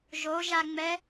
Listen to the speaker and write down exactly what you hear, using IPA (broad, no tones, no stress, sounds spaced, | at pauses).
ʒ o ʒ a ŋ͡m ɛ